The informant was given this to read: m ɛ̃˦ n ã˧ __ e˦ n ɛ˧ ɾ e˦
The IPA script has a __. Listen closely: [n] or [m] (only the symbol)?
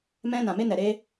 m